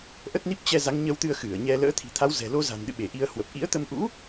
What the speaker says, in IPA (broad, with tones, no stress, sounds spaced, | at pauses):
ʔ ə˦˥ t̚ n i˦˥ p̚ t͡ɕ ɛ˧ z a˨˦ ŋ ɲ ə˧ w t̪ ɨ˧ ə̯ x ɨ˧˩ ə̯ ɲ ɛ˧ l ə̰ː˧˥ t̪ʰ i̤˨˩ t̪ʰ a˨˦ w z ɛ̤˨˩ l o˧ z a̤˨˩ n ɗ ɨ̰˧˨ ɓ e˧˩ ʔ i˨˦ ə̯ h w ə˨˩ p̚ ʔ ḭ˧˥ ə̯ t̪ ə˧ m ʔ ṵ˧˥